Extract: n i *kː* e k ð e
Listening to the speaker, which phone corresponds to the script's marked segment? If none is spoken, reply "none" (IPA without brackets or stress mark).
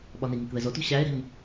ŋ